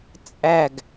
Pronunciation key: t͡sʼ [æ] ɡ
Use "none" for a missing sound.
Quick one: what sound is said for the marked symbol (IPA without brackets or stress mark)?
æ